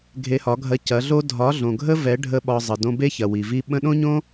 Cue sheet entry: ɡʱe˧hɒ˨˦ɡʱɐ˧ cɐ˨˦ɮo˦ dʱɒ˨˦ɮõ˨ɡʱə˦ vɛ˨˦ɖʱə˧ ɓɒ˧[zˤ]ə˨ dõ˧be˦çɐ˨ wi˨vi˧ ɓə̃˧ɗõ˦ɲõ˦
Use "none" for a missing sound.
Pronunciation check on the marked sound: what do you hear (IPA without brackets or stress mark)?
zˤ